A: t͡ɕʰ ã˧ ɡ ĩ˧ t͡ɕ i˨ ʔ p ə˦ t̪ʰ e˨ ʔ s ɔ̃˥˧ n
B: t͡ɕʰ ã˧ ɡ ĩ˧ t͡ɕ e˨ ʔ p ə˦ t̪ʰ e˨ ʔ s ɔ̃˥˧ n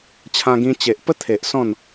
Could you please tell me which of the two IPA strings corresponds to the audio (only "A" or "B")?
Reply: B